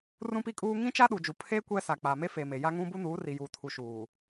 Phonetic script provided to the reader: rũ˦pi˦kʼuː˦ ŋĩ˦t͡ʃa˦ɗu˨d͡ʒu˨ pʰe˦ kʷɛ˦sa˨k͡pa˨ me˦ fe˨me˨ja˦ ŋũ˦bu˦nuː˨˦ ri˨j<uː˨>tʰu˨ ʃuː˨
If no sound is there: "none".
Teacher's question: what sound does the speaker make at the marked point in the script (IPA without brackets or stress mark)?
uː˨